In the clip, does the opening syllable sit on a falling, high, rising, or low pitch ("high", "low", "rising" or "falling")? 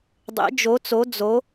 rising